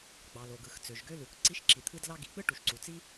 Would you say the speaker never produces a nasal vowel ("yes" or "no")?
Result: yes